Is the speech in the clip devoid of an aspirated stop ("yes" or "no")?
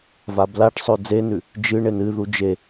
yes